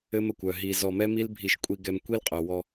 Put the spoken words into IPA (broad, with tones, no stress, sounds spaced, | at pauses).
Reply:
ɘ˦ m ə˨ kʷ œ˨ ɦ i˨ z ɔ˨ m ɛ˦ m i˦ l bʱ i˨ ʃ kʷʼ i˨ ɡ ɛ˨ m kʷ i˦ l qʼ œ˨ w ɔ˦